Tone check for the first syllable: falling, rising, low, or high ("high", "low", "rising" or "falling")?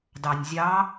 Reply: low